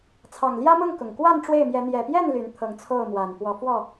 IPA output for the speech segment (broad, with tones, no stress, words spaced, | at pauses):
t͡sʰɑ˨˩ŋljä˦mʊ˥˨ŋ kʊ˨˩ŋ kwa˥˨n ʈ͡ʂwe˥˨ɪ̯mjɛ˨˦ n̪jɛ˨˩pjɛ˥˨n ly˨˦nt̪ʰɤ˨˦ŋt͡sʰo˥˨ʊ̯ mwa˨˩n pwɔ˨˦fwɔ˥˨